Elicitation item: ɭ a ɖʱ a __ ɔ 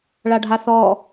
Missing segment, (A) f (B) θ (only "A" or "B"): B